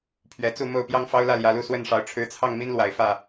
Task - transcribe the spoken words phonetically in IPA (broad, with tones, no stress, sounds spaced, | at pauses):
pʰ ɥ ɛ˨˩ t͡s u˥˨ m o˥˨ ʊ̯ p j ɑ˦ ŋ f ɑ˦ ʊ̯ l ä˥˨ l j ä˨˦ l u˥˨ s w ə˥˨ n ʂ ɑ˨˦ ʊ̯ ʈ͡ʂʰ ɻ̩˨˦ t͡sʰ ɑ˥˨ ŋ m i˦ n l w a˨˩ ɪ̯ f ä˥˨